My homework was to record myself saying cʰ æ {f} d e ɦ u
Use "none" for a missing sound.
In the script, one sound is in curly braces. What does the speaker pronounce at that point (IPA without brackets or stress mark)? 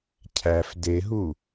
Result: f